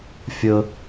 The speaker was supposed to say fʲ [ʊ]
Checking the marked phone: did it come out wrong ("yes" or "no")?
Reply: no